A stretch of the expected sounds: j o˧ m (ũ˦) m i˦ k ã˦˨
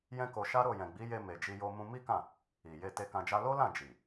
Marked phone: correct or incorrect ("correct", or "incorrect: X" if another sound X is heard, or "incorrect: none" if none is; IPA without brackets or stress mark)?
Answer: correct